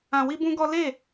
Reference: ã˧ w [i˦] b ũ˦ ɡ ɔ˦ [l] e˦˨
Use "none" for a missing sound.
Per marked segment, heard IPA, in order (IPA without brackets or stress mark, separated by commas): i˦, l